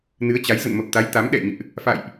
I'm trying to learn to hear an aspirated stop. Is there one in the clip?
no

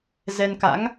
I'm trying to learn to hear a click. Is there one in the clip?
no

